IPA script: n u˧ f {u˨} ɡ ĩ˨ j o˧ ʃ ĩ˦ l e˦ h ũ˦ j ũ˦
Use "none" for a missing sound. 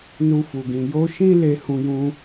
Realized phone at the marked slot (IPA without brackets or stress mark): u˨